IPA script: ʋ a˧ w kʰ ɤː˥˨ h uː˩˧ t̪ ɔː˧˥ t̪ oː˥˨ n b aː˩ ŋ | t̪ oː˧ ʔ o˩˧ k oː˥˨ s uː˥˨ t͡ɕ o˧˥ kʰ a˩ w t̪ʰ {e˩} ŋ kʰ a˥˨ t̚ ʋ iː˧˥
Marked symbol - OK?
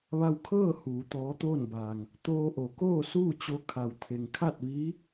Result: yes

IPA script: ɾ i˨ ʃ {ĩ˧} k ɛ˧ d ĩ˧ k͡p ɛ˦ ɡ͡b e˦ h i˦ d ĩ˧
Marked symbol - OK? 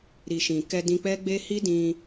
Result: no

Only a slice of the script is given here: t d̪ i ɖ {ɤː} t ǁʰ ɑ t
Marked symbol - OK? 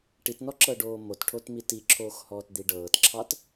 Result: yes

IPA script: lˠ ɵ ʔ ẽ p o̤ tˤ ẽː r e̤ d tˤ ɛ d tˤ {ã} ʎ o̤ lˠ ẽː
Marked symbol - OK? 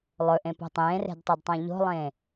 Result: yes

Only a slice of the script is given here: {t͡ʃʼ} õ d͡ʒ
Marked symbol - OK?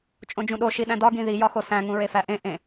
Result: yes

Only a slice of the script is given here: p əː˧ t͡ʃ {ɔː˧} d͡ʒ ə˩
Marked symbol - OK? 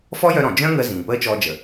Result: yes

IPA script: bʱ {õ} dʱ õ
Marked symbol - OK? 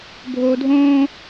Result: no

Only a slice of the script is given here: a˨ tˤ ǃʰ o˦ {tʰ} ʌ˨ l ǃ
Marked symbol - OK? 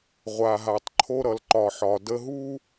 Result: no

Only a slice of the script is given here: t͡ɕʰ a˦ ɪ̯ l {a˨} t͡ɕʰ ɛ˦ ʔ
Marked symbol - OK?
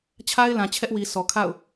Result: no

